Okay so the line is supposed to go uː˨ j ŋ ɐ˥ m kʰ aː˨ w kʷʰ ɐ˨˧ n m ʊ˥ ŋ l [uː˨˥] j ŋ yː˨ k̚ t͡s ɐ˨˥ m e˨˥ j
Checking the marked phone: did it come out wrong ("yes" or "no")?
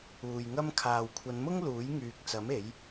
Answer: no